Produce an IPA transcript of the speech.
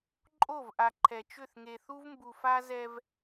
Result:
ǃʼo˦˨vʔa˨ ǃʰɛ˨t͡ʃʏ˦˨θ ŋe˨θu˦vmbu˨fa˦ zɛ˦v

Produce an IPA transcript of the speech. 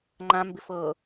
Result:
ŋ͡ǃãmbɪ fɤ

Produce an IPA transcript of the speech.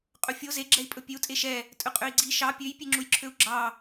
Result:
qʼɵfʲo ze ɡ͡ǁɛi̯pʼɵpʲøu̯ tʼeʃɛ | tʼɵqʼøi̯ɡ͡ǀi ʃɑ pʲøj pʲeŋ͡ǁujǁʰøu̯ɡ͡ǁɑ

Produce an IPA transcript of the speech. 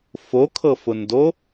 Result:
fokʰɤfʊndo

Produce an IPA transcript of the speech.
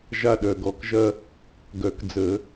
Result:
ʒa˦˨ɗœ˨˩ɡɔ˨˩˦kʒɐ˦ | ɡœ˨˩˦kd͡zə˨˩˦

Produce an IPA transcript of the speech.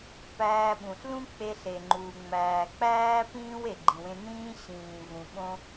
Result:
pæː˧ ɓũ˩ɬlũ˥ k͡pe˧ɬe˩ŋ͡ǃuː˩ ŋ͡mæː˩k͡pæː˥ pĩː˥w e˩ɡ͡ǃĩ˩wẽ˧ nĩː˥ ɕĩː˩vũ˩ ɓõ˧

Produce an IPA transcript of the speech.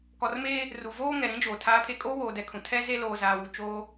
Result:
kɔ˨rmeː˦ | ru˨ voː˦ŋɛ˨ɾĩ˦d͡ʒoː˨ tʰaː˨˦pʰe˨kʼoː˦woː˨ dɛ˨kʰũ˨ tʰɛ˦ze˦loː˨ zaː˨wu˨t͡ʃoː˦

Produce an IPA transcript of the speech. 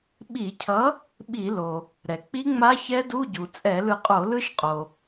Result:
ɓi˧˩˧cʰʌ˨˥ | ɓi˧˩˧lo˩ | ɾɛ˩k͡pi˦˥ŋ͡ma˦˥ çɛ˦˥du˧˥˧ɟu˩ t͡sʼɛ˧˩˧lɯ˧˩qʼo˧˩˧lɯ˦˥ʃ qʼo˩

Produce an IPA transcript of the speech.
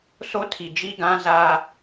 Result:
so˦tʰi˨ d͡ʒi˦ɡã˦za˦

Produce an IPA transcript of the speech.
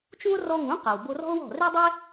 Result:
t͡ʃũ˥o̯ rɔ˧ŋũ˩˥ qa˩wbo˧rɔ̤˥o̯wɔ̤˥˩ re˥dˤɛ˥

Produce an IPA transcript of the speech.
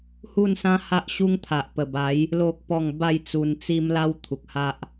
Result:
hu˥˧nsã˦ha˦ʔɕu˦ŋ t̪ʰa˨ʔpə˨˩ba˨˦j | lo˦k̚pɔ˥˧ŋ ba˥˧jt͡su˧nt͡si˦m la˦w t̪ʰu˨k̚ha˦ʔ

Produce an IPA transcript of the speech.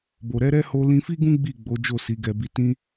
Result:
bo˨ ɾɛ˨˦ ɾɛ˦ho˧ lĩ˧fi˦ɡũ˦ ɡ͡bi˦˨ ɡ͡bo˨˦d͡ʒo˦˨si˨˦ ɡɛ˧bi˧ tĩ˦

